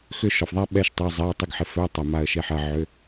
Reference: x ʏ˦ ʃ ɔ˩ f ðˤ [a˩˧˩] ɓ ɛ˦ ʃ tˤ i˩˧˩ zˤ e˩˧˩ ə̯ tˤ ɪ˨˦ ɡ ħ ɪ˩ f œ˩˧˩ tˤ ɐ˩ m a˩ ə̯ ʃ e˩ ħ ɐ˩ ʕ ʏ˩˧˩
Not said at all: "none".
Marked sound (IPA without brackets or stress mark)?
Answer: a˦